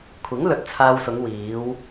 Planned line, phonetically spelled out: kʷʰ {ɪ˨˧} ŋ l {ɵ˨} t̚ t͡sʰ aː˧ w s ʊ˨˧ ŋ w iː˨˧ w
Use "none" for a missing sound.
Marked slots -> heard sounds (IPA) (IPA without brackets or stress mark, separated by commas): ɪ˨˥, ɵ˨